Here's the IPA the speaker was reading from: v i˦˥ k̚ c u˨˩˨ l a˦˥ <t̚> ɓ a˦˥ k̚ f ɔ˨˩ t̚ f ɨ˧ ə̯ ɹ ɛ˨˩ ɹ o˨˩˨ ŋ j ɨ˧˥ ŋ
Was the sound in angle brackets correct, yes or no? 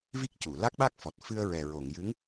no